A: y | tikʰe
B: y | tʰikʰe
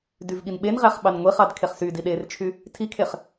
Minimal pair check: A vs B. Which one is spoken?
B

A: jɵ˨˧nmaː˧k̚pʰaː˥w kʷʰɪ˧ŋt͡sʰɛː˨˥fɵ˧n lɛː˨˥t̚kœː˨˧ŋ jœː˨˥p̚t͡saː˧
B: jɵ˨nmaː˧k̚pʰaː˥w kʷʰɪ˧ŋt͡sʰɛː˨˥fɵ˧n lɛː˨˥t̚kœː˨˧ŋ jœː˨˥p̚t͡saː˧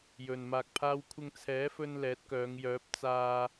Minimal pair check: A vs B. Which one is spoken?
B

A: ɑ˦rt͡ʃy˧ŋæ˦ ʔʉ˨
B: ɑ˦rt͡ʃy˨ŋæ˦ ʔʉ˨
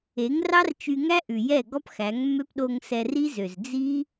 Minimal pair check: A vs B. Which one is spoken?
A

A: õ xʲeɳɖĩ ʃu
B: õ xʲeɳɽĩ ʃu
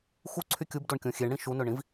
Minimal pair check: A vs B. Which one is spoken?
B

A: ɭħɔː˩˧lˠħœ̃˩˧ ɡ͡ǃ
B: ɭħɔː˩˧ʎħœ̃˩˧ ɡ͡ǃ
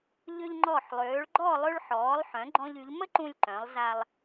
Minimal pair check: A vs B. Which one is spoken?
A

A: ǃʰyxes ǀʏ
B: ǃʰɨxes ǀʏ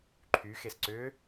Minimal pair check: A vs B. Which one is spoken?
A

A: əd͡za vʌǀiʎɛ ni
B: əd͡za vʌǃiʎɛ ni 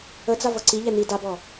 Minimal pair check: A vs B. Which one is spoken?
A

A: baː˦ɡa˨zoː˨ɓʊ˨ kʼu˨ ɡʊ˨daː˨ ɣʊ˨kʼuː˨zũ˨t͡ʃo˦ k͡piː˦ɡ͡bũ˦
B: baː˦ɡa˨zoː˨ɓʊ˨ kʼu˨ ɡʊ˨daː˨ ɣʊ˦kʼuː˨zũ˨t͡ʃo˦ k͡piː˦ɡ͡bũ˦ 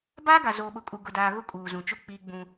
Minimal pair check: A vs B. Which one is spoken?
B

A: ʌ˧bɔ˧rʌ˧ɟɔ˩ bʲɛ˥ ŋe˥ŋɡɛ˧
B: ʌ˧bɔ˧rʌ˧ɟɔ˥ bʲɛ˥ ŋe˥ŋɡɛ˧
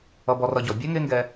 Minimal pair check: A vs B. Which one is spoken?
A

